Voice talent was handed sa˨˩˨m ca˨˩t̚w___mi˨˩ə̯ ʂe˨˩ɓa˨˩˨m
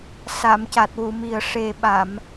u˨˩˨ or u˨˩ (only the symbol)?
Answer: u˨˩˨